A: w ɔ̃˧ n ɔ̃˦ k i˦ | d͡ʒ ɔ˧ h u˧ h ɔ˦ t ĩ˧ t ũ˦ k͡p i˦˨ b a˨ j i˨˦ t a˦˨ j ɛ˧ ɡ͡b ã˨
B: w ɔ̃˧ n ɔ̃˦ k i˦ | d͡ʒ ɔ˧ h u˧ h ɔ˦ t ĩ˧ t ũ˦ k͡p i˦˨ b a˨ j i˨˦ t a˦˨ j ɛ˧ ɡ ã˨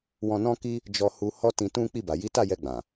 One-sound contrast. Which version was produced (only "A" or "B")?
A